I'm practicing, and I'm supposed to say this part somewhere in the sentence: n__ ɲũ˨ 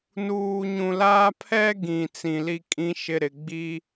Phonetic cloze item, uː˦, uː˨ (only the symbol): uː˨